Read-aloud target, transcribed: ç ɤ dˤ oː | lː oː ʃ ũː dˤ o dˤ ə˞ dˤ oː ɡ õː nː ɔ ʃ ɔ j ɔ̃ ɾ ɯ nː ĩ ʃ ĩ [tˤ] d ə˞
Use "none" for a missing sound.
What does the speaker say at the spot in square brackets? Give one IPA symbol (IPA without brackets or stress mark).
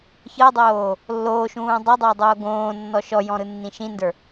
n